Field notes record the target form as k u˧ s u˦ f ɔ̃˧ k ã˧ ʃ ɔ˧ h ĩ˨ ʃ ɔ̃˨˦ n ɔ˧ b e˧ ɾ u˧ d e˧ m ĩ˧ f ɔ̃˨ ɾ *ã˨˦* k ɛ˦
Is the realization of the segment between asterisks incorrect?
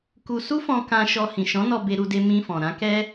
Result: no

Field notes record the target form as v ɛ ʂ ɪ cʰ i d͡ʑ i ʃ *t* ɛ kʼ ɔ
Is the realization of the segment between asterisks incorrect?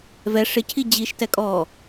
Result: no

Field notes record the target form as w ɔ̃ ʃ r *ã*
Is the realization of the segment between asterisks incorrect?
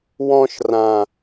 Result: no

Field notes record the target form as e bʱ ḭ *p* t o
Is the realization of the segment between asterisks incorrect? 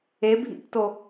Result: no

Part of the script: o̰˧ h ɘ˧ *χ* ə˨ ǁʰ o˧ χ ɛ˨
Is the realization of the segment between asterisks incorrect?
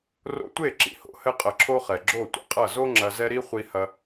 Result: yes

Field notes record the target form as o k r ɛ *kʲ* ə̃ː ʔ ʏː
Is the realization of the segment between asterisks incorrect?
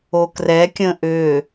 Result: no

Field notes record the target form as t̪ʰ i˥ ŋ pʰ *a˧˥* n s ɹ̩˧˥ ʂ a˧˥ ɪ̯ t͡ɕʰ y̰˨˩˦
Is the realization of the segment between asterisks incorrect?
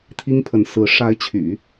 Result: yes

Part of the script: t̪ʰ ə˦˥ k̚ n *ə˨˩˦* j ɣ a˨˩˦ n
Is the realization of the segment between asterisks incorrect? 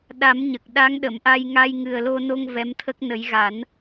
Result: no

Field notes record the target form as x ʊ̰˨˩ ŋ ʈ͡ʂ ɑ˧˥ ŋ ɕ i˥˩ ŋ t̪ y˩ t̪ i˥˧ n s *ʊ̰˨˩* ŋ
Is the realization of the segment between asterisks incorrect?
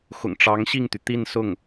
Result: yes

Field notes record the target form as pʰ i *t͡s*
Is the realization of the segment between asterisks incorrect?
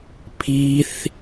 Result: yes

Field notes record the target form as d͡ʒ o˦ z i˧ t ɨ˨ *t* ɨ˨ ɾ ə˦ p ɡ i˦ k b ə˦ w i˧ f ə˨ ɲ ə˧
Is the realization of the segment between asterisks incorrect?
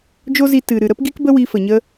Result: yes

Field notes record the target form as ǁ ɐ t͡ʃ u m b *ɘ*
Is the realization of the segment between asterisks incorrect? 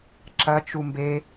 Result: yes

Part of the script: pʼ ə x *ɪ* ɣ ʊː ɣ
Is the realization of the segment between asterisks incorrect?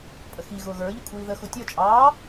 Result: yes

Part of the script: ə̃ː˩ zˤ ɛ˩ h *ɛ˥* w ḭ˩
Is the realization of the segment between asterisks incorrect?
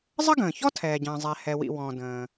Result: yes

